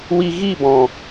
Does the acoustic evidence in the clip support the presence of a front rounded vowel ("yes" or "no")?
no